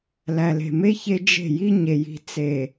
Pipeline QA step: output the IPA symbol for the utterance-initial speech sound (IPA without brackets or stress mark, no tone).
l